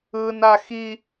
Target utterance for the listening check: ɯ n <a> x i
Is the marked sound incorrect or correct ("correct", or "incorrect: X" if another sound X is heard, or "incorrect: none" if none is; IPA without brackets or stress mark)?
correct